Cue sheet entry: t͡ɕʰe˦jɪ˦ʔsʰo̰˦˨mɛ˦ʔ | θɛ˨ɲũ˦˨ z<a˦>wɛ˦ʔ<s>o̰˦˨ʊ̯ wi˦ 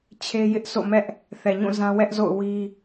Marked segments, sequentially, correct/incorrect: incorrect, incorrect

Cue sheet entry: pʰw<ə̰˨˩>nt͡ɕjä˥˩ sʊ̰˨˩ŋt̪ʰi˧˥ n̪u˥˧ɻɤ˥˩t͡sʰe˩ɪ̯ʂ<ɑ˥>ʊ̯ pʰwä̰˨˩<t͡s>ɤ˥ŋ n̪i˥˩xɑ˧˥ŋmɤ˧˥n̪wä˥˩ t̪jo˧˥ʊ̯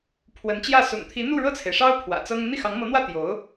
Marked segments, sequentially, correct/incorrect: incorrect, correct, correct

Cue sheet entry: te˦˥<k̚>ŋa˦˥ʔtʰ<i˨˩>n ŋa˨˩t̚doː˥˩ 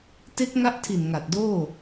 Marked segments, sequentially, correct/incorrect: correct, correct

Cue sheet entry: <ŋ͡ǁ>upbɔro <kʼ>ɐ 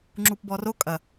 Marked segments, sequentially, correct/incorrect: correct, correct

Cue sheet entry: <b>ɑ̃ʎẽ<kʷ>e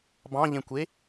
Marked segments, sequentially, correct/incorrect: correct, correct

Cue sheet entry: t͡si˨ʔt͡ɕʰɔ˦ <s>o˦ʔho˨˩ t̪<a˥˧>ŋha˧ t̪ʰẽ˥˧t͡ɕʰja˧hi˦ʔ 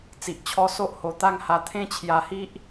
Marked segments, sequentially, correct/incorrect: correct, correct

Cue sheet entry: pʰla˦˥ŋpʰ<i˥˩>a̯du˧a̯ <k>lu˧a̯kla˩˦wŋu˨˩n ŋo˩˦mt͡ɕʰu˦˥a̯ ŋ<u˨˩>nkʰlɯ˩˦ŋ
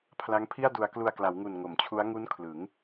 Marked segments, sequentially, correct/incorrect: correct, correct, incorrect

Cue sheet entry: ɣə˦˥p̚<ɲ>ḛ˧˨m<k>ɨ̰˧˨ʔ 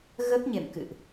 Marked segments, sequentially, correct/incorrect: correct, correct

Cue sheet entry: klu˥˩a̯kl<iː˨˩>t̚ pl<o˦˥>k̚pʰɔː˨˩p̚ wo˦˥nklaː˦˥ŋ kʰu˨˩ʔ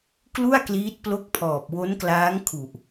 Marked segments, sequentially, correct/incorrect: incorrect, correct

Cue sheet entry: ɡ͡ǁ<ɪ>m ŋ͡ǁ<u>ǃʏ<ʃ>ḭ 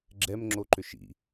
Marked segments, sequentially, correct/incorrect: incorrect, incorrect, correct

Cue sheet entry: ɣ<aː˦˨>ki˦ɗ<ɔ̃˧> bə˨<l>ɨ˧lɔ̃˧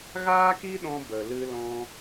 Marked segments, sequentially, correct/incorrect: incorrect, correct, correct

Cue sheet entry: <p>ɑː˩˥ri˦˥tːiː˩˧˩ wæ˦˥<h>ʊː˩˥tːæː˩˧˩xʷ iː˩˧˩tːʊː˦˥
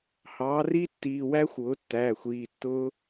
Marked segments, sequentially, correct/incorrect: incorrect, incorrect

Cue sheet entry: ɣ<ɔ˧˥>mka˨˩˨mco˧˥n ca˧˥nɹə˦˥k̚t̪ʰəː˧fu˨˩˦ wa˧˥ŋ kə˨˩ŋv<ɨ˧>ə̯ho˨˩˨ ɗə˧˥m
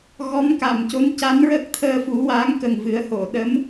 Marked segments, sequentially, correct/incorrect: correct, incorrect

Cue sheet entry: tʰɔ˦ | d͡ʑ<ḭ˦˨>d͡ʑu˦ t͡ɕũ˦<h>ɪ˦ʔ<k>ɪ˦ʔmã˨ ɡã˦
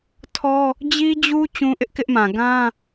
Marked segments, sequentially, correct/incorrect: incorrect, incorrect, correct

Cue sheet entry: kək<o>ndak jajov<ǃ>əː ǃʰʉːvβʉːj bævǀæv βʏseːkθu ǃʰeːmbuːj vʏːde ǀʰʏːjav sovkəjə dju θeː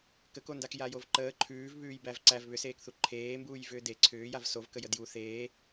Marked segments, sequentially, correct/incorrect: correct, correct

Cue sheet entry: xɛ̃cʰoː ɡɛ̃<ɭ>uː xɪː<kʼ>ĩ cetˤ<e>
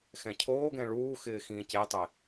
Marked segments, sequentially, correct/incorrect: correct, incorrect, correct

